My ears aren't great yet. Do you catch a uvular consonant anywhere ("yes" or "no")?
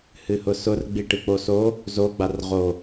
yes